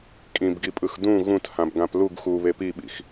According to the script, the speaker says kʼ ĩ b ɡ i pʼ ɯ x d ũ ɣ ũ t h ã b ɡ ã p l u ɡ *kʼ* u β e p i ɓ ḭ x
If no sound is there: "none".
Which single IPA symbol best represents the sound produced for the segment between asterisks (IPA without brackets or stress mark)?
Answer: x